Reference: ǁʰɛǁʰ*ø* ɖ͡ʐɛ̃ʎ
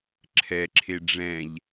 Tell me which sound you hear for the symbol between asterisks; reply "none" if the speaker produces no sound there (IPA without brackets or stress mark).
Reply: e